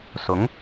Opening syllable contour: rising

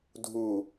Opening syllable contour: low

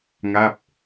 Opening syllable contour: falling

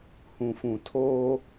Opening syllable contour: low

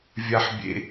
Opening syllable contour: high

